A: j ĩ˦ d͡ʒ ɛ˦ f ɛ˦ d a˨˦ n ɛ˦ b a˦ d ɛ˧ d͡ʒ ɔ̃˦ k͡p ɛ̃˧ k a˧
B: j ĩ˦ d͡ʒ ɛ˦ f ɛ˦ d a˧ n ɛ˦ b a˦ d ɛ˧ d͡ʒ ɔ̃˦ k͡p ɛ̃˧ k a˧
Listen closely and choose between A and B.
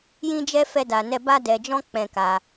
B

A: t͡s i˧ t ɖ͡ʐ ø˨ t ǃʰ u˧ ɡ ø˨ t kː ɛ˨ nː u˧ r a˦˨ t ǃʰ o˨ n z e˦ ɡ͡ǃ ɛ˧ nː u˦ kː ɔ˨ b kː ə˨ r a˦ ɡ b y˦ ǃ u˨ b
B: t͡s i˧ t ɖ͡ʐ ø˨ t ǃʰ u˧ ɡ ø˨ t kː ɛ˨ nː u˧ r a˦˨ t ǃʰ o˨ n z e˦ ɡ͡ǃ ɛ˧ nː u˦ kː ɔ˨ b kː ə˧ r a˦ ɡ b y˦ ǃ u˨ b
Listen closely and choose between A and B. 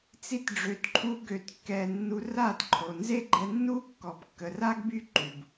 A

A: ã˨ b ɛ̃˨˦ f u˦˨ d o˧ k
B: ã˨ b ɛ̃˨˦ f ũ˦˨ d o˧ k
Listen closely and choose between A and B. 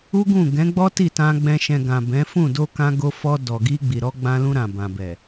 B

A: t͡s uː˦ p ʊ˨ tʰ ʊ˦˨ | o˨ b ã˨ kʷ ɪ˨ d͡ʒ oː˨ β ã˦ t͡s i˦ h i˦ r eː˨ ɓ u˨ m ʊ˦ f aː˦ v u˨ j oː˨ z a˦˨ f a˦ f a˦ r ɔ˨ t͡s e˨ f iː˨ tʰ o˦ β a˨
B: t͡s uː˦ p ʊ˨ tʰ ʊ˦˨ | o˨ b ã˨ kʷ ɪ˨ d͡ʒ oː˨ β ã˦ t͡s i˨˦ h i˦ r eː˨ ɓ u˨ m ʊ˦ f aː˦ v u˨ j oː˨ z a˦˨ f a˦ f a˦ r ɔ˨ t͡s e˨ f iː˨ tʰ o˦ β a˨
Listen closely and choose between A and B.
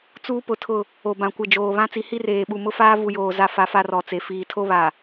B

